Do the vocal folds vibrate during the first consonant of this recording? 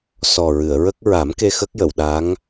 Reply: no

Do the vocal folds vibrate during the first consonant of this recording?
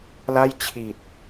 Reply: yes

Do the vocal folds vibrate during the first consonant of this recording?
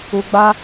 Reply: yes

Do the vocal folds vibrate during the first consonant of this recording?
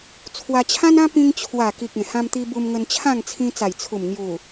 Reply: no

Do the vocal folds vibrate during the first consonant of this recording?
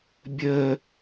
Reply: yes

